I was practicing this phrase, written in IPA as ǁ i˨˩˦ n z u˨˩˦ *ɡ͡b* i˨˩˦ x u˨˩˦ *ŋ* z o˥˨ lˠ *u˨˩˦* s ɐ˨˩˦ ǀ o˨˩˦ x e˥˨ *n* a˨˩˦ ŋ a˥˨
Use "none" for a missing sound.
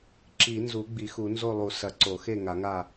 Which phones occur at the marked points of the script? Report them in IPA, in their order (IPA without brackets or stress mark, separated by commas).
ɡ͡b, n, u˨˩˦, ŋ